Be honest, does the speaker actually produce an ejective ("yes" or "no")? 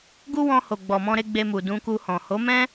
no